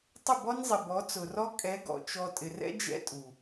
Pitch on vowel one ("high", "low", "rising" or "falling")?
falling